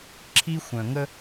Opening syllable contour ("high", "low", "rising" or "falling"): high